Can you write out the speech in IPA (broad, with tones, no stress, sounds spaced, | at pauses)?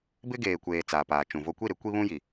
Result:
b ɪ˦ ɡ eː˨ kʷ eː˨ t͡s aː˨ p aː˨ t͡ʃ ũ˨ v o˦ kʷ i˦˨ ɾ ɪ˦ kʷ i˦ β ũ˦ j i˨